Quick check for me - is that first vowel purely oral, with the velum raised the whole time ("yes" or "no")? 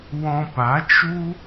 no